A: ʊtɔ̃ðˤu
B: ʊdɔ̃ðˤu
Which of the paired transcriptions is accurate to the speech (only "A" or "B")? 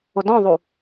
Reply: B